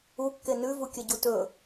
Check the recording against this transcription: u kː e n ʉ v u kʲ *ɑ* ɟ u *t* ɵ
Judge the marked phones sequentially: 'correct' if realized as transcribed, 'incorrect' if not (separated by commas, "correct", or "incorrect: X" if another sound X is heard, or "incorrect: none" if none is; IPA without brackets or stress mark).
incorrect: ɐ, correct